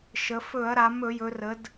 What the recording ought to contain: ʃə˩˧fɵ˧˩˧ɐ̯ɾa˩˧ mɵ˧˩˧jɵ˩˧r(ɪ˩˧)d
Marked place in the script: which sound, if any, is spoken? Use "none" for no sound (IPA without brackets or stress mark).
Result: ə˩˧